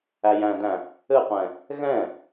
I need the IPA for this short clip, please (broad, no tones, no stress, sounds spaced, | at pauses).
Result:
æ j æ̃ d æ̃ | ɘ qʷ ɛ̃ | ɣ ɛ̃